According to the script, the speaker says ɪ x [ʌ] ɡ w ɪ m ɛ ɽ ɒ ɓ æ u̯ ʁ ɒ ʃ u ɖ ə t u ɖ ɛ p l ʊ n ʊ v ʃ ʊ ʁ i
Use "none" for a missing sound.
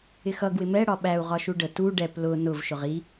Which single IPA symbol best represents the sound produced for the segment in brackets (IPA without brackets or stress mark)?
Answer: ʌ